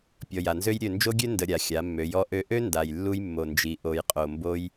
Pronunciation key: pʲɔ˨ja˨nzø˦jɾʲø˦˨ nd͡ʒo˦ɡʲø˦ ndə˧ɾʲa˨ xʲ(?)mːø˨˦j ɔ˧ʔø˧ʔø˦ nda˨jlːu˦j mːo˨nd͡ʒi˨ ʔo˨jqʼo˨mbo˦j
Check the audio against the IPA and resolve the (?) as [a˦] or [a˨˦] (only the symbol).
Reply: a˨˦